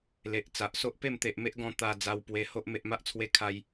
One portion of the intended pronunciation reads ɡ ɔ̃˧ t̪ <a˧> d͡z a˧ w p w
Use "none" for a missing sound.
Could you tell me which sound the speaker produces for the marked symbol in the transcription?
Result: a˧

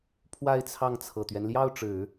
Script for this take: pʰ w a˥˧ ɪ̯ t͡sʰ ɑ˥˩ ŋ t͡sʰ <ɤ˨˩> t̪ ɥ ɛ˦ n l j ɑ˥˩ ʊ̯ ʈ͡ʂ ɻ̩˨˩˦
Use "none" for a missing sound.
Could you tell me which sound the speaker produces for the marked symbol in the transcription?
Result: ɤ˨˩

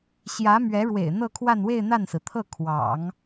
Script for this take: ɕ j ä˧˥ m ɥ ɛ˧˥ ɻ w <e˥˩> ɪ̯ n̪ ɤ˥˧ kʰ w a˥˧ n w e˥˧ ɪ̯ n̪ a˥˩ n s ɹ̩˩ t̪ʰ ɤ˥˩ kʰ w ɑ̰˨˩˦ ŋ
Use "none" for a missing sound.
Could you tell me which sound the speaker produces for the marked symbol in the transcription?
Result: ḛ˨˩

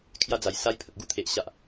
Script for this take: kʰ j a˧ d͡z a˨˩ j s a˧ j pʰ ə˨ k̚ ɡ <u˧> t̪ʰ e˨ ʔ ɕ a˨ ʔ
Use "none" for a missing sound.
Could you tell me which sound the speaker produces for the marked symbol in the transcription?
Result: u˧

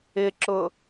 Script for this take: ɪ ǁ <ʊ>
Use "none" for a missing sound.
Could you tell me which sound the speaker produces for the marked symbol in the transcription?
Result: ʊ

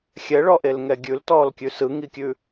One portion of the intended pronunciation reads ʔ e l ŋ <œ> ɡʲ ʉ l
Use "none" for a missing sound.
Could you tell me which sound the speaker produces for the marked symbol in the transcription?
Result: ɛ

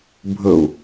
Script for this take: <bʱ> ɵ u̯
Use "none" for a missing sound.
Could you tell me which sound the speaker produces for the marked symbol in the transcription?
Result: bʱ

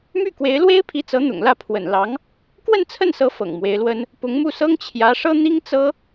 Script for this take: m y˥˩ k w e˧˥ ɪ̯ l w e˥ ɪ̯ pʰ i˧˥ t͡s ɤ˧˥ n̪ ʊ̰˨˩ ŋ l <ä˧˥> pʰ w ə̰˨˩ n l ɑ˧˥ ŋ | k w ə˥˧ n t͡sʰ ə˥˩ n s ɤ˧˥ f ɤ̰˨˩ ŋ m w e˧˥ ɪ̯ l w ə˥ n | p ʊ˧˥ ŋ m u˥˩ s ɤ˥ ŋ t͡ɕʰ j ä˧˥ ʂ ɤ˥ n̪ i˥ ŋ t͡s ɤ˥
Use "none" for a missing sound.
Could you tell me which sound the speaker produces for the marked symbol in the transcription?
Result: ä˥˩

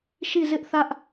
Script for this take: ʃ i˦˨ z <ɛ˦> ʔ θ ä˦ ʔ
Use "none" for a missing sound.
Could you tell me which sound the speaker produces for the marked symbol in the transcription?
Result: ɪ˦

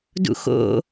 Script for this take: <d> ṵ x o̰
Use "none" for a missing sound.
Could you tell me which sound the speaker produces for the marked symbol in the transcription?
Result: d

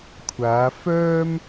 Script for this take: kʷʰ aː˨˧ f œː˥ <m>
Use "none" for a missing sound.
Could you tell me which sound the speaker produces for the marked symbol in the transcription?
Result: m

